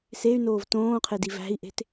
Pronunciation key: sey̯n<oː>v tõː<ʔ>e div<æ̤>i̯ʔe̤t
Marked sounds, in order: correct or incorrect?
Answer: correct, incorrect, correct

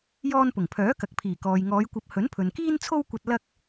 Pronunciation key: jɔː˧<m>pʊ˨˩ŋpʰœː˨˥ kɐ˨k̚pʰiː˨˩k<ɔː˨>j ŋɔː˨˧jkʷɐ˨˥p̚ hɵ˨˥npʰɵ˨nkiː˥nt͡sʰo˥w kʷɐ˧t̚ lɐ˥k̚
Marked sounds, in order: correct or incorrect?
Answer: incorrect, correct

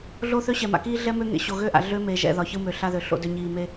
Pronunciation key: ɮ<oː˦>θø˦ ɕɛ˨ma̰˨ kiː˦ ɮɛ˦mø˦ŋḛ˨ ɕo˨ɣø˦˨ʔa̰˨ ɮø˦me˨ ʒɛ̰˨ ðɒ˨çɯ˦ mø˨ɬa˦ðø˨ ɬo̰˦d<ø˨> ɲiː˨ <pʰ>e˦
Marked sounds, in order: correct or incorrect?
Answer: correct, incorrect, incorrect

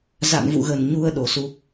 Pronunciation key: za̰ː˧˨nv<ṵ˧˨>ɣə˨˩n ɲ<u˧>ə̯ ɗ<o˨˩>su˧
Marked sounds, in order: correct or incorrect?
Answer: correct, correct, correct

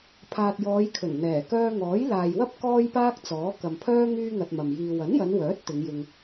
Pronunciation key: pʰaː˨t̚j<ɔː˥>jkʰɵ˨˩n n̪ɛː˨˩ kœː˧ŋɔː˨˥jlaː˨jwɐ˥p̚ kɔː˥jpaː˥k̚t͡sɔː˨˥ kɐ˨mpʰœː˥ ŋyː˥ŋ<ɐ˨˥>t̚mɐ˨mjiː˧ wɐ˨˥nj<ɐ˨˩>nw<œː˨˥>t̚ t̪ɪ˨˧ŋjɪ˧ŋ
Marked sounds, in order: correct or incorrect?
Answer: incorrect, incorrect, incorrect, correct

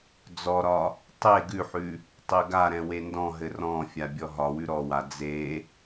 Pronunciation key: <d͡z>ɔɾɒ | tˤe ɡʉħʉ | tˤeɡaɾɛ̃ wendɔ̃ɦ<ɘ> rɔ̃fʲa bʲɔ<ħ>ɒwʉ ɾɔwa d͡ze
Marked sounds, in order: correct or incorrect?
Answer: correct, correct, incorrect

